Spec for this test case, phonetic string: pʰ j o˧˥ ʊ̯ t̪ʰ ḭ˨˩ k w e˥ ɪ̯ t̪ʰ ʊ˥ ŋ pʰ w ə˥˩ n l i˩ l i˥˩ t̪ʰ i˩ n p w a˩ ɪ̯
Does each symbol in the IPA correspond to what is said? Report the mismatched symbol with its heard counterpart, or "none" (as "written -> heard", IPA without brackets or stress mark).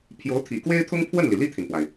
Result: none